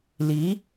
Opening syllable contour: rising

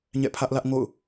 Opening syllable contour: falling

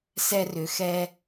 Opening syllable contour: high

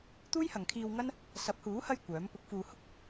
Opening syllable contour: high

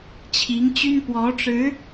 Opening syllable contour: rising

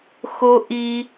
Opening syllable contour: high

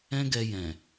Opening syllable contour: high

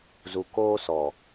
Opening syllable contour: low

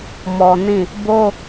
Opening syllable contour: low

